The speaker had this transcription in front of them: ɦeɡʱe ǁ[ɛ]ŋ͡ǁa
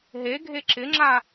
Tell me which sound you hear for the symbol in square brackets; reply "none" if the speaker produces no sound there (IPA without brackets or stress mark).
ɪ